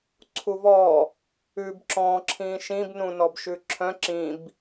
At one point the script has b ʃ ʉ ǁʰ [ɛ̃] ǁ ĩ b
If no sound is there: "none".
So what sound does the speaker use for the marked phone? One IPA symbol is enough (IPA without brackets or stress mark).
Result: œ̃